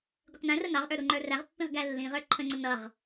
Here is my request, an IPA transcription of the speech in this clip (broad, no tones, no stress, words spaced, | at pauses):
ɡʷɪqnæ̃rə nɑʁʔə˞ ɾuŋ͡ǃə˞ræʁpːĩʁ ɡælːĩʁə˞ ǃʰə̃ŋ͡ǀə nʌʁ